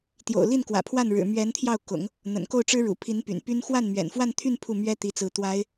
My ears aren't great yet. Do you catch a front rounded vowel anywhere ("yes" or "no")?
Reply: yes